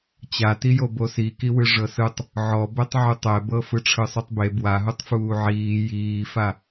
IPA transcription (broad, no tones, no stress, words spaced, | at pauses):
t͡ɕatijo bosikiwɯ ʐɤsɯtˤ | ʕɔbɛtˤ ʕutˤɛbɤ fɯʈ͡ʂʰɯsˤutˤbe bwaɦutˤ fuːʕiː jiːfa